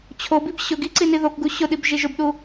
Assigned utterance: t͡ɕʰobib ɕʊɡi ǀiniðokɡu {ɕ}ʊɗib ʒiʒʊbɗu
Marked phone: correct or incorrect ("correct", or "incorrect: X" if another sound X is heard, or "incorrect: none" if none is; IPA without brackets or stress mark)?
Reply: correct